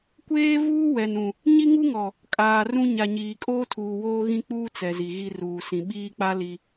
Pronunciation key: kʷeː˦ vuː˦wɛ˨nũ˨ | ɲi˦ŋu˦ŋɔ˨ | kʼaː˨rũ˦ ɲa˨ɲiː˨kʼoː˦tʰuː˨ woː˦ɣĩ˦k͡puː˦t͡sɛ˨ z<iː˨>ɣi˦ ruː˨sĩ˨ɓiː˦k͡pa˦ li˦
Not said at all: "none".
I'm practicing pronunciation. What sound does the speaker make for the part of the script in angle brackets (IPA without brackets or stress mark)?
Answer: i˨